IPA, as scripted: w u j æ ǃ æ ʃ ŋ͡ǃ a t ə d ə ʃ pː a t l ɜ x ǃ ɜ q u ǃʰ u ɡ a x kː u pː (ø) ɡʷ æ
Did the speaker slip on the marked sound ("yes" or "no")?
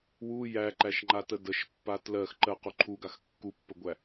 yes